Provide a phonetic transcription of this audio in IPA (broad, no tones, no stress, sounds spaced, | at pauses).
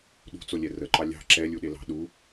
ɗ ṳ t͡s o lʲ ɛ r ə ǃ ɑ lʲ ɑ̤ ǁ ɛ lʲ u ɗ e l ɑ̤ ɗ u